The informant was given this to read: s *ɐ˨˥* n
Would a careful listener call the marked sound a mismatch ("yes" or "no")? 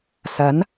no